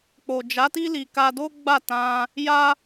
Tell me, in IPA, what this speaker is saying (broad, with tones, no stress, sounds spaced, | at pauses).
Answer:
k͡p o˨ d͡ʒ a˨˦ t i˦ l i˧ k a˦ d o˦ ɡ͡b a˦˨ t ã˧ | j a˦